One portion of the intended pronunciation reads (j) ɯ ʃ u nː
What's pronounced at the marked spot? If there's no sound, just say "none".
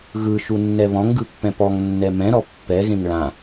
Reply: ɣ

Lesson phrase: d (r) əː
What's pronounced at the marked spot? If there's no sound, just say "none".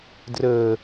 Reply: r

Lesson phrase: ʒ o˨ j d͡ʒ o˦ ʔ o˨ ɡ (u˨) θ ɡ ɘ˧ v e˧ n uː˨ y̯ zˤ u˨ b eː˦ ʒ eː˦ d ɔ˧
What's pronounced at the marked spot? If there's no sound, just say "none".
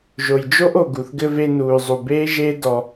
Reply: u˨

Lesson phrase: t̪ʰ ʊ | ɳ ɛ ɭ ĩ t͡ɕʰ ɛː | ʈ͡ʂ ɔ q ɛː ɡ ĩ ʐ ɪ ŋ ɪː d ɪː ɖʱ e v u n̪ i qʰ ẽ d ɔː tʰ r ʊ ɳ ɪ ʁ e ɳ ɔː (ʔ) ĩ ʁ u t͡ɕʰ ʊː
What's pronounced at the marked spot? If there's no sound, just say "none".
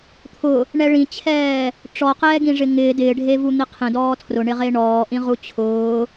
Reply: ʔ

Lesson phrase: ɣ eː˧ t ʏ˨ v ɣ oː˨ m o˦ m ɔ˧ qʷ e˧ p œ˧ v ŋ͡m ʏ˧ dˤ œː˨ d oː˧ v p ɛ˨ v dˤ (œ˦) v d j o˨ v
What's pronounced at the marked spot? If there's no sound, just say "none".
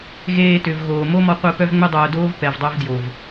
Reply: œ˦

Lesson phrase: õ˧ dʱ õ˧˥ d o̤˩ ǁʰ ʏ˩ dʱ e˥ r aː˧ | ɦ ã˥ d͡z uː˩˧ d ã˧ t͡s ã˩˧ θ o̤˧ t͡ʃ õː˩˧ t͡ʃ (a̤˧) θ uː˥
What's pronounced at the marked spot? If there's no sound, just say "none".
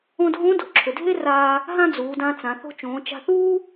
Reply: a̤˧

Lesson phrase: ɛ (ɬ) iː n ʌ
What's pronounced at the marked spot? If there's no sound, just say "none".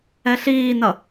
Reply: ɬ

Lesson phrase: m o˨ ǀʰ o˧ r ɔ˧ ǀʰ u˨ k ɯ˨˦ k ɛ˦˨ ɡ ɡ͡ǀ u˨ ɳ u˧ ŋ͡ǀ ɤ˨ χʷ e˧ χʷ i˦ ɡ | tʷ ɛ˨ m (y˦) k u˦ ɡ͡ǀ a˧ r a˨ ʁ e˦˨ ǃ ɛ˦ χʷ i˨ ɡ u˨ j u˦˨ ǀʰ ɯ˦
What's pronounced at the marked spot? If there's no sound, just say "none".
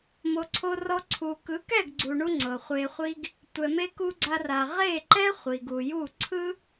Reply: e˦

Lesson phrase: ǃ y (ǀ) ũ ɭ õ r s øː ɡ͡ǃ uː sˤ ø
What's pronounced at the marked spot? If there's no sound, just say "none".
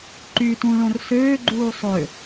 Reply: t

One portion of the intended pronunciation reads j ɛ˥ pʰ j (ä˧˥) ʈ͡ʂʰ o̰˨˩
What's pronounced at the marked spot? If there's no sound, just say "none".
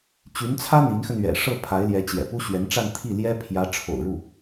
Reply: ä˧˥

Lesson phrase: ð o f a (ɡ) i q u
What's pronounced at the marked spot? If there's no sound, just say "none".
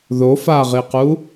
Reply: ʁ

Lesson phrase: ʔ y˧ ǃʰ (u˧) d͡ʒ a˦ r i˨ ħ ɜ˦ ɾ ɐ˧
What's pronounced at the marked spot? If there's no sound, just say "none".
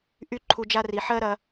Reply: u˧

